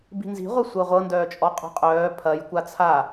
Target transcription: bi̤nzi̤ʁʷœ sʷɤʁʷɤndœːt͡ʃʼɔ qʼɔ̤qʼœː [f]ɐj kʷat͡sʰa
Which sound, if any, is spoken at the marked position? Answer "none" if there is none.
pʰ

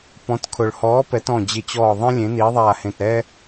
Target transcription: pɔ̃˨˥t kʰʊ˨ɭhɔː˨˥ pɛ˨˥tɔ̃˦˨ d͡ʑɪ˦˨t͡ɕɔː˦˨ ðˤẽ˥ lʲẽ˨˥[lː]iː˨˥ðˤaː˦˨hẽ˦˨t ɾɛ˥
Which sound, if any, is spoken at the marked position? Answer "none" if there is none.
n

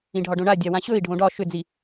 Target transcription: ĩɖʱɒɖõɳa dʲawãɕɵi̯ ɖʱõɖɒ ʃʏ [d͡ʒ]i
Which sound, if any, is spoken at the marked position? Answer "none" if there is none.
d͡z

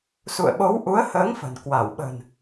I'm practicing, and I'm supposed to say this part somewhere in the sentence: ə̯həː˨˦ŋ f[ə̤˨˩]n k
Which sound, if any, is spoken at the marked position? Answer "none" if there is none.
ə̤˨˩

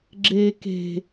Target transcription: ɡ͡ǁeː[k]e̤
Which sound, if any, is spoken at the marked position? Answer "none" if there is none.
k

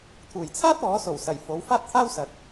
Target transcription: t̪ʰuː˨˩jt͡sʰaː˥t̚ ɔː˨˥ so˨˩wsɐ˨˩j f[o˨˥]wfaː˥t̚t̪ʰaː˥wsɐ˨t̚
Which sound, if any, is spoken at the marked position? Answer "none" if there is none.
o˨˥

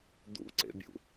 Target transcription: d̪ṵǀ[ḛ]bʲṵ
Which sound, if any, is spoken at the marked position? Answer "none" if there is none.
ḛ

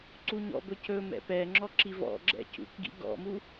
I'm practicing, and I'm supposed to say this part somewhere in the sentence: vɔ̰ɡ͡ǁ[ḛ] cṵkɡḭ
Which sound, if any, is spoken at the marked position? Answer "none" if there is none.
ɛ̰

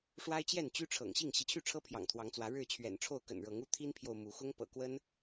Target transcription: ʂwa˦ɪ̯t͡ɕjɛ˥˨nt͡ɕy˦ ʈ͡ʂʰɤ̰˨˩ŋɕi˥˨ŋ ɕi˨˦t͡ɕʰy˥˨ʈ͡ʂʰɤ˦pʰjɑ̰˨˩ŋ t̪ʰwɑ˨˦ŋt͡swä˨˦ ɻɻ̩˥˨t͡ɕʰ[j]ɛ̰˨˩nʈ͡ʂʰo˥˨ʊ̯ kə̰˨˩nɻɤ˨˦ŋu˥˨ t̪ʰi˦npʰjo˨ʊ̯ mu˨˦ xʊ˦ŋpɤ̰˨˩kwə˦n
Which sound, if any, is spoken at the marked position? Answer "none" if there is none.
ɥ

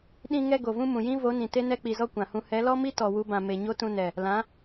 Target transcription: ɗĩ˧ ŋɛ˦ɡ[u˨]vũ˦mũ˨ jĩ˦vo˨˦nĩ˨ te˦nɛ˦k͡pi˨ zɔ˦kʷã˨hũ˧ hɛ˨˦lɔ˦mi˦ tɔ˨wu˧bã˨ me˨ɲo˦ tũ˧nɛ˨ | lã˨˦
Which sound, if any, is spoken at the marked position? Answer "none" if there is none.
o˨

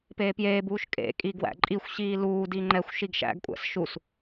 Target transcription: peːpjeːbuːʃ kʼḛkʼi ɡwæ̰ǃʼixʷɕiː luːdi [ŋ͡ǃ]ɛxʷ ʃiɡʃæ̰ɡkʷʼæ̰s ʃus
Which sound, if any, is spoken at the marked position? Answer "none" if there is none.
ŋ͡ǃ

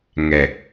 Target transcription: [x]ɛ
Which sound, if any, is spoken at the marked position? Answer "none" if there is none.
ŋ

